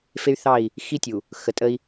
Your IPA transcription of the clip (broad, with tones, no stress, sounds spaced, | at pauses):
f e˦ y̯ θ ɑ˦˨ i̯ | x i˦ tʲ u˨ | x ə˨ tʼ ə˦ i̯